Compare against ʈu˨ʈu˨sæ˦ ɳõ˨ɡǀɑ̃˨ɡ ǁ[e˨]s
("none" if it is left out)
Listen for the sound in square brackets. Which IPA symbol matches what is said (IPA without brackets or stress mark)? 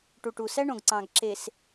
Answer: e˨